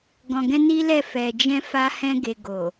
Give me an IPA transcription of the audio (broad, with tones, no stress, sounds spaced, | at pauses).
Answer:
ɡ ɔ̃˨ ɡ ɛ̃˧ n i˦ l ɛ˦˨ f ɛ˨ d͡ʒ ɛ̃˧ f a˦ h ɛ̃˦ ɡ e˧ ɡ o˨